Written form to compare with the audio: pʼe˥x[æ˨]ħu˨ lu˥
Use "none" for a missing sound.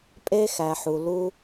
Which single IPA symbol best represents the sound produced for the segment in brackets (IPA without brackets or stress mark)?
æ˨